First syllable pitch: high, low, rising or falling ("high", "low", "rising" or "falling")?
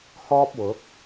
high